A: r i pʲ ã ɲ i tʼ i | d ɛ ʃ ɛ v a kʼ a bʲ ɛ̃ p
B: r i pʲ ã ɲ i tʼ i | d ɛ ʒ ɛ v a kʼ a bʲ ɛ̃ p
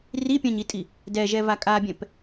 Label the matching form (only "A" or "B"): B